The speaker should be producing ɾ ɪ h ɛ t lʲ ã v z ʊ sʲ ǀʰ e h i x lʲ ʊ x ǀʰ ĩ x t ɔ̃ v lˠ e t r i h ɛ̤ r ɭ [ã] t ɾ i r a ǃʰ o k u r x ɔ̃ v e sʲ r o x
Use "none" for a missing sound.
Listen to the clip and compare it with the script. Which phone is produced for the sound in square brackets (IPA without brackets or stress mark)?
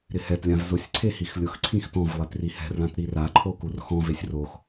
ã